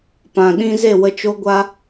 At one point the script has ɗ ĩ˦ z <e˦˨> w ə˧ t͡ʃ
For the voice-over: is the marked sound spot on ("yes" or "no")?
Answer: yes